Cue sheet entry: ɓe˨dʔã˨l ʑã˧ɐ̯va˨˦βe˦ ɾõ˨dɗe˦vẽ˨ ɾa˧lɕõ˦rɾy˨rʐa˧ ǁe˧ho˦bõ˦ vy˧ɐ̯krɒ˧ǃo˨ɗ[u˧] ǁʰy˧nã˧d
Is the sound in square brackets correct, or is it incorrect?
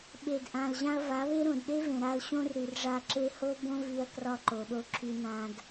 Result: incorrect: o˧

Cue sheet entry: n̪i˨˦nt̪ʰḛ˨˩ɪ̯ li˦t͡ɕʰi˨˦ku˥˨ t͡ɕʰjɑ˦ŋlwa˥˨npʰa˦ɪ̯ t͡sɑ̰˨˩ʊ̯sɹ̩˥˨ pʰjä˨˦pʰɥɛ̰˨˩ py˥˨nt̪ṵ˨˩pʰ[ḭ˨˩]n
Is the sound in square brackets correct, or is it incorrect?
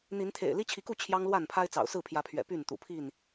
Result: incorrect: i˥˨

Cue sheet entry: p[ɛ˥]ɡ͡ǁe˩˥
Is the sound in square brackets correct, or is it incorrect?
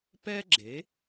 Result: correct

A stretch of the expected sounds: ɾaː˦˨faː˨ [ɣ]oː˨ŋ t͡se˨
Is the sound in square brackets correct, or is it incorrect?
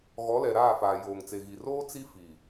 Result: incorrect: j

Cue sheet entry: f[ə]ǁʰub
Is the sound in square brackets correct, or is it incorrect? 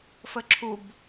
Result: correct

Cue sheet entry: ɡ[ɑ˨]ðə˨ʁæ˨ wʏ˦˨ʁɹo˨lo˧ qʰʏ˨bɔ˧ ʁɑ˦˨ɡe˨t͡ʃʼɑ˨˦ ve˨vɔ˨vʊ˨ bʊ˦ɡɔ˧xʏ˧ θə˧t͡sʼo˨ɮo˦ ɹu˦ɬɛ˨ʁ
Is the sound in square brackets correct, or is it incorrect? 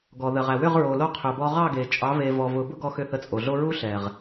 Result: incorrect: ɔ˨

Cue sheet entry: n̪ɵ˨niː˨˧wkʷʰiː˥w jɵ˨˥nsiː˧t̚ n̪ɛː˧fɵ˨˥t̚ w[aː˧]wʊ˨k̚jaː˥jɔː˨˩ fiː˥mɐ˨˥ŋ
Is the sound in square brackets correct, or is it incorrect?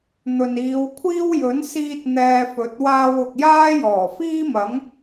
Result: correct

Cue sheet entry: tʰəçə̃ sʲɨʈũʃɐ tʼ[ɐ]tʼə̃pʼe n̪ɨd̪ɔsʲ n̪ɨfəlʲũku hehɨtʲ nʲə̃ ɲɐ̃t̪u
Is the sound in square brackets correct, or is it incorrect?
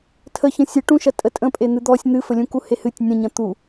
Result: incorrect: ə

